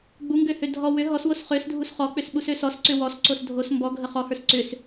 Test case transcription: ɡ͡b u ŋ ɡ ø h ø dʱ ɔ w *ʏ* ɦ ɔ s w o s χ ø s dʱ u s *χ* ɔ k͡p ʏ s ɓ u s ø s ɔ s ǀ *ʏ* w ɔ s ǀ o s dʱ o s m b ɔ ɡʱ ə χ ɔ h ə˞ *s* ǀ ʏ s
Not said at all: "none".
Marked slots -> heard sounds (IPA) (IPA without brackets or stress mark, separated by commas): ʏ, χ, ʏ, s